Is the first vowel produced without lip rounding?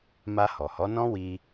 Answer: yes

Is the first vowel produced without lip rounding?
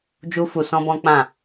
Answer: no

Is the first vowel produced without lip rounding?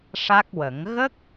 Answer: yes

